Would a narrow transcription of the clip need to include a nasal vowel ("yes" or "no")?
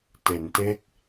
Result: no